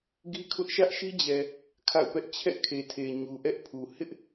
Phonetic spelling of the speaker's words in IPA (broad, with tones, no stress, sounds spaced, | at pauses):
ɡ i˦ kʰ ʊ˦ ʔ ʃ ä˦ ʔ ʃ i˦ d͡ʑ ɛ˨ | kʰ a̰˦˨ ʊ̯ p ɛ˦ ʔ t͡ɕʰ ɛ̰˦˨ kʰ e˨ tʰ e˨ ɲ u˨ ʔ ɛ˦ ʔ pʰ u˨ h ɪ˦ ʔ